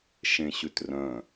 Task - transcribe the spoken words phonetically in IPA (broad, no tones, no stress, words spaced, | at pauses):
ʃẽɕʉtrœ̃